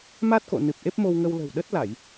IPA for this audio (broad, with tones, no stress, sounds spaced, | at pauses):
m a˦˥ t̚ k o̰˧˨ n ɨ˨˩ p̚ ʔ e˦˥ p̚ m o˧ w ŋ ə˧ w l ə̤˨˩ w ɗ ə˦˥ t̚ l a˧˩˨ j